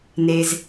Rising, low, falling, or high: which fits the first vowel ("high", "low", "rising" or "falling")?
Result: low